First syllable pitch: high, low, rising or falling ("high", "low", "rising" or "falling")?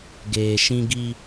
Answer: low